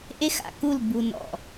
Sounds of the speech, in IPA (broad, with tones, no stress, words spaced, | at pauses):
ʔe˦xa̰˨ku˦˨l bu˨nɔ̰˨